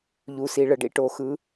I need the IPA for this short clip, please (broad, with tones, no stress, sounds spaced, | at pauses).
ʎ u˨ s i˨ ɭ ə˨ ɖ ḭ˦ ʈ o˨ x ɯ˨˦